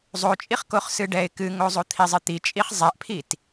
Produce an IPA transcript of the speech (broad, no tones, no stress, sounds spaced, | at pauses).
zˤ o t͡ʃʼ i χ k o χ s ɨ ɖ ɛ ɪ̯ k ɨ ŋ o zˤ o t̪ʰ i zˤ ɨ t̪ i t͡ʃʼ i χ zˤ ɛ ʔ pʰ i t